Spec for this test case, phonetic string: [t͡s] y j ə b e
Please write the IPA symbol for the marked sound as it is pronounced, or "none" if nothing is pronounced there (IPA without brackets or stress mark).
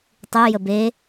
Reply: tˤ